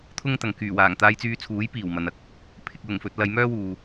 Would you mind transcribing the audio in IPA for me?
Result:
t̪ʰ ʊ˥ ŋ t̪ ɐ˨ ŋ k yː˨˩ w aː˨˩ ŋ t̪ aː˧ j t͡s yː˧ t͡sʰ uː˨˥ j p iː˨˩ w m ɐ˨˧ n ɐ˧ k̚ | pʰ ɪ˨ k̚ l ʊ˨˩ ŋ f ɵ˨ t̚ l ɐ˨˧ j m œː˥ w uː˨

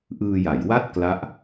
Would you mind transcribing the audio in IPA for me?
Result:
ʔ ɯː˧ j a˩˦ j w a˥˩ t̚ k l a˦˥ ʔ

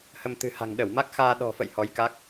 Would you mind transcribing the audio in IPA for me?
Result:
h ə˧ m t̪ ɨ̤˨˩ h a̤˨˩ ŋ ɗ ə˧˩ w m a˦˥ k̚ x aː˧ ɗ ɔ̤˨˩ f ə̰˧˨ j h ɔ˨˦ j k a˦˥ k̚

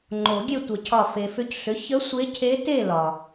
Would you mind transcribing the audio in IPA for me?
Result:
ŋ͡ǃ o˨˩˦ ɡʲ e˥˨ tʷ ə˨˩˦ cʰ ɒ˧˩ f e˩ f ʏ˧˩ c ɬ ʏ˩˥ ç ə˧˥ sʷ e˧˥ cʰ e˧˥ t e˥˨ l ɒ˩

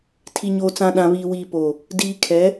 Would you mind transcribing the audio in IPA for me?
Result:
tʰ i˨ ɲ oː˨ t͡s ã˨ ɗ ã˨ β iː˨ w iː˨ p oː˨ | d iː˨ kʰ ɛ˨˦

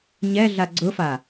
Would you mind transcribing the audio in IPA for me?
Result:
ɲ ɛ ɮ a ɡ͡ǀ ʊ f a

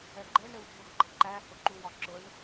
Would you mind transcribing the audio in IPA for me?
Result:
ɛ ɡ͡ǃ ɛ ɳ ɾ ɪ w dʱ ʊ ɡ ɡ͡ǃ ʌ ǃ æ h ʊ ǃ u w ɒ ǁ ʊ ɳ

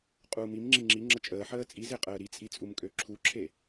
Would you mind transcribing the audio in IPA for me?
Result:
qʼ uː m i m ŋ͡ǁ i ŋ͡ǁ i ŋ͡ǁ ə t͡ʃʼ əː ħ əː t͡sʼ i z e qʼ əː ɾ i t͡sʼ i t͡sʼ u m kʼ ø ǁʰ u ǁʰ e

